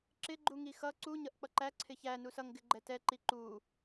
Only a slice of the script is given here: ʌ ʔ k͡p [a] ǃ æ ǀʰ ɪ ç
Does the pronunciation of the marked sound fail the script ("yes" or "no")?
yes